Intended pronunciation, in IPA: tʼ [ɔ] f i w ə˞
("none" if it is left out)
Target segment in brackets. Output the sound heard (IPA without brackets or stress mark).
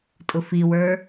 ʊ